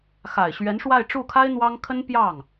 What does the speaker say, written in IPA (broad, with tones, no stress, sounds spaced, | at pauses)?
x a˨˩ ɪ̯ ɕ ɥ ɛ˧˥ n ʂ w a˥˧ ɪ̯ ʈ͡ʂ u˥˩ kʰ a˥ ɪ̯ n̪ w ɑ˥ ŋ kʰ ə˥ n p j ɑ˥˩ ŋ